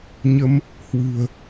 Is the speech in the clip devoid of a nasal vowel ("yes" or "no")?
yes